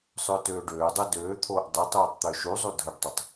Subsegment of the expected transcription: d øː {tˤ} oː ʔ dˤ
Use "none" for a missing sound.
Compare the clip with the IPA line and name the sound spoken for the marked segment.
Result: t̪ʰ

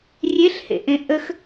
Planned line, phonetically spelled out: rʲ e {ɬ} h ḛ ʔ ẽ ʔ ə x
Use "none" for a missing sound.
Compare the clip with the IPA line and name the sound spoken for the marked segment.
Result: ɬ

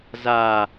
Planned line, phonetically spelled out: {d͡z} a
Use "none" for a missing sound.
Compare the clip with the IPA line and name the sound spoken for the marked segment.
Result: z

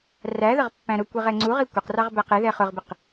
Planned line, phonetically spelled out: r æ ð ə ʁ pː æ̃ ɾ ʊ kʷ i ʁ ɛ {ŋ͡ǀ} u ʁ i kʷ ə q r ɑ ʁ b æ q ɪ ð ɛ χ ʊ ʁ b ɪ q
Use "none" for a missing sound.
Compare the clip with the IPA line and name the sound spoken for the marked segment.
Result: ŋ͡ǀ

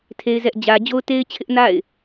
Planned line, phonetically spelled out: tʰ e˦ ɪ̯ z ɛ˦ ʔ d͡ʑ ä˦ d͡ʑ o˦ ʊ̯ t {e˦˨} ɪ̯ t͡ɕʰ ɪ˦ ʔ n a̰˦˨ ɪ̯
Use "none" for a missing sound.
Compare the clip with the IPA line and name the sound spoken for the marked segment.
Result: e˦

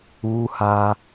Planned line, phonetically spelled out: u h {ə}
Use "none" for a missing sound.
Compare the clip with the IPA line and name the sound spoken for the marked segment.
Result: a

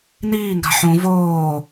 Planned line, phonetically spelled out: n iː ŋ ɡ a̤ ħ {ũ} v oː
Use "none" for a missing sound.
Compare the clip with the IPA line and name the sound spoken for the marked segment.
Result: ũ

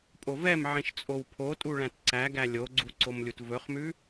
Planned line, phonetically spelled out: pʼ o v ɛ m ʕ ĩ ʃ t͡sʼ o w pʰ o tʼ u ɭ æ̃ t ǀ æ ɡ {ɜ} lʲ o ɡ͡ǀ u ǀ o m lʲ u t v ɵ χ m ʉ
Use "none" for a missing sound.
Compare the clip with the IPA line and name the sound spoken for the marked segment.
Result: æ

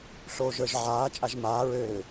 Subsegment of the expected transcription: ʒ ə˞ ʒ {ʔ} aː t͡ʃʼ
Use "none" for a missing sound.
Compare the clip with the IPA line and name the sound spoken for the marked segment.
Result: ʕ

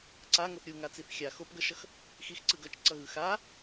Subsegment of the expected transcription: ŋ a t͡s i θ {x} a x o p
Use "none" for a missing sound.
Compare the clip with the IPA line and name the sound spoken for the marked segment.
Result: xʲ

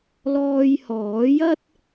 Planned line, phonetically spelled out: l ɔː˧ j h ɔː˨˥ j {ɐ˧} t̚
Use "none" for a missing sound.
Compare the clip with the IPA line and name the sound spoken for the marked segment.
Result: ɐ˥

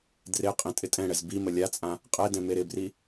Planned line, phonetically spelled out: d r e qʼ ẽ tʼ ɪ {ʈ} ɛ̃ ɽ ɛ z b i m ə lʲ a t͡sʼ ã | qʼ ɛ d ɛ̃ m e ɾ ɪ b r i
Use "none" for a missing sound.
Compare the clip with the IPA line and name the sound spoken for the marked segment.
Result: tʼ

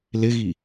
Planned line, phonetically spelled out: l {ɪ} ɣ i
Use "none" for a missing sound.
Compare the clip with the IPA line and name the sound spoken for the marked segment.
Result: ɪ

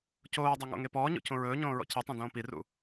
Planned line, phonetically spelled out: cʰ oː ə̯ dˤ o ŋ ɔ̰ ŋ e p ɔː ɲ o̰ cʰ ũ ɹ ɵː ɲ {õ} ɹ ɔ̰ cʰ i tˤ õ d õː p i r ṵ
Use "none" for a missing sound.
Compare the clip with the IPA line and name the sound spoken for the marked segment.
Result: õː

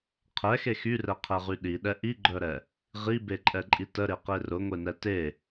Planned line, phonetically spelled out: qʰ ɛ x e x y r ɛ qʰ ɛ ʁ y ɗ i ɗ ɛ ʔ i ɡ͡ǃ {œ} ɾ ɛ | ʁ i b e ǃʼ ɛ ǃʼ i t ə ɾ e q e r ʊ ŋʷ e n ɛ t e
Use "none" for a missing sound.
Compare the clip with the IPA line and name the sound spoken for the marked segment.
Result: œ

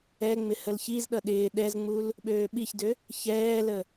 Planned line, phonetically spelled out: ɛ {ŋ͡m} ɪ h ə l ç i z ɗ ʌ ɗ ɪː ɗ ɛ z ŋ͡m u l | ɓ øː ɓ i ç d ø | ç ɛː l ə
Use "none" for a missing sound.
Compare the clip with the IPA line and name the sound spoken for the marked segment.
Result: ŋ͡m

